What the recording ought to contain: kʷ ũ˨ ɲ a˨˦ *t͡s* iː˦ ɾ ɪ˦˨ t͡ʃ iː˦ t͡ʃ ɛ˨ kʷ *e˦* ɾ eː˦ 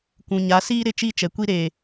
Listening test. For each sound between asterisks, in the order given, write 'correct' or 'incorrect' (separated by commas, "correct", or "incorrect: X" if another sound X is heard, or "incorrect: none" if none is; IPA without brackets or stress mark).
incorrect: s, incorrect: i˦